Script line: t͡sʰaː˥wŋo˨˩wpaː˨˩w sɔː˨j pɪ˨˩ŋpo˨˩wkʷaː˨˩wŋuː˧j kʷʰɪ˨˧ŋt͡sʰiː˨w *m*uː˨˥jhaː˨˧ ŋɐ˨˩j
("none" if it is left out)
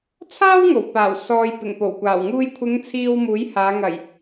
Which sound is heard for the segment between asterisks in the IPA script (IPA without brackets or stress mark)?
m